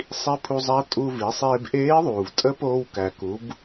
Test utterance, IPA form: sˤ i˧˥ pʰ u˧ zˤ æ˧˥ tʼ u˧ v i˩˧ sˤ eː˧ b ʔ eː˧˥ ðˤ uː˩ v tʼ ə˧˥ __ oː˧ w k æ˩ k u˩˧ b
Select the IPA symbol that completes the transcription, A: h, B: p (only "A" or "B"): B